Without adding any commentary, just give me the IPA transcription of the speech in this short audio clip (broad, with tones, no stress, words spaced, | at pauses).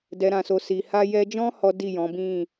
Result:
dɛ˨ɾã˨so˨ si˨ha˧jɛ˧d͡ʒɔ̃˦ hɔ˦di˦˨jɔ̃˨˦bĩ˦˨